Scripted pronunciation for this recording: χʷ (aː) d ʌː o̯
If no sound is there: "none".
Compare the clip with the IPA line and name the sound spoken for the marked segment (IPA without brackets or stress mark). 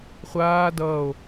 aː